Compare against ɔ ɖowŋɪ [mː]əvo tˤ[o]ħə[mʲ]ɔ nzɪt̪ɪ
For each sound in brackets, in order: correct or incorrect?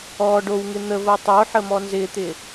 incorrect, correct, incorrect

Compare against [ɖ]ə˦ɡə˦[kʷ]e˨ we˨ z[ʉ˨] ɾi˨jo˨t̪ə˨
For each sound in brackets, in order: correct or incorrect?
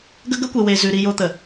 incorrect, correct, correct

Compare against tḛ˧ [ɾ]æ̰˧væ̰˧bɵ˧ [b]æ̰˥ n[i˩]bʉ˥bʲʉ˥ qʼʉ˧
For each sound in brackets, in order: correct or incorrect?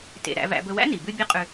correct, incorrect, correct

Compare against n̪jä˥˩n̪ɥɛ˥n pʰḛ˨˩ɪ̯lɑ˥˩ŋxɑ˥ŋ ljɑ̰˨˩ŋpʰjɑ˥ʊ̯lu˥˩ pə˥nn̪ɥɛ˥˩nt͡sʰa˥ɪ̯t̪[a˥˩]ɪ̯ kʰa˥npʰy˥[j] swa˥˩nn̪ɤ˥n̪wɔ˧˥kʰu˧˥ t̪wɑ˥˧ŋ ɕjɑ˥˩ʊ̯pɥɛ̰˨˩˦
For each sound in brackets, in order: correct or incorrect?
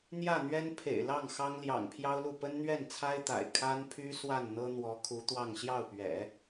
incorrect, incorrect

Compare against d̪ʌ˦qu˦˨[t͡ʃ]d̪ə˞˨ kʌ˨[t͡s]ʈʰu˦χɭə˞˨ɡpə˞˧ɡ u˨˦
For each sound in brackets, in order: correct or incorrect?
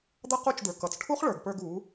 correct, correct

